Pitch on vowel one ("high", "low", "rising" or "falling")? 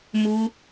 high